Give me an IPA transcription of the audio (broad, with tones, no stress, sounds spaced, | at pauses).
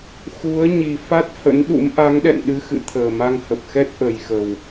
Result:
x u˨˦ ə̯ ɲ i˨˩ f a˦˥ t̚ h ə̰˧˥ n ɗ ṵ˧˥ m ʔ a˨˦ ŋ ɗ ɛ̰˧˨ n ɗ ɨ˧ x ɨ̰˧˨ t̪ʰ əː˨˩ m a˧ ŋ h ə˨˩ p̚ x ɛ˦˥ t̚ ʔ ə˨˩ j x ə˨˩ w